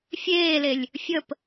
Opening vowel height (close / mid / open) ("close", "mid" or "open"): mid